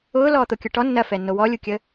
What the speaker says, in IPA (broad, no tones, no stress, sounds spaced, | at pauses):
ʊː l ɔː t̪ o kʲ ʊ ʈ ɔ nː ɐ f ɛ nː o w ɔ lʲ u kʲ ə